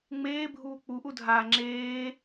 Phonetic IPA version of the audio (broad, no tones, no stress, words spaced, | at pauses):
ŋ͡meːbʱuː k͡puʔudʱaː ŋ͡ǁeː